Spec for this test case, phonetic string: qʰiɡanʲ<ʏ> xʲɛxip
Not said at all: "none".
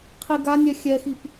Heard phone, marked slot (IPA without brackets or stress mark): ɛ